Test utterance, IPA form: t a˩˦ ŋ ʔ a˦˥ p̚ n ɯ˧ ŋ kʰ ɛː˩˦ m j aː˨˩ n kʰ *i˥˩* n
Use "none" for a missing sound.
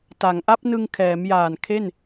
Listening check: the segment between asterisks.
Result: e˥˩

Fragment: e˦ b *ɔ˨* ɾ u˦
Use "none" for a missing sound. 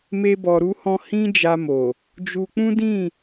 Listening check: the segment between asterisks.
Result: ɔ˧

